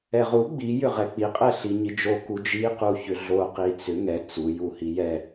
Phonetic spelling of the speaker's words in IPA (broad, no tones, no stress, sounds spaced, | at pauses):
ɛ ʁ u ɡ͡b i j ʏ ʁ ɛ k͡p i qʼ ɛ ɬ i ɲ i d͡ʒ o k u d͡ʒ i q u ç ʏ ɮ o q i t͡s ʏ ŋ ɛ t͡s u j u h i j ɛ